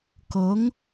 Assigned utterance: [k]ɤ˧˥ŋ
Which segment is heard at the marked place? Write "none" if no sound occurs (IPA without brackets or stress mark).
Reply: k